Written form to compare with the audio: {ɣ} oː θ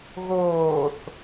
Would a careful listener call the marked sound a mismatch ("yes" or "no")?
no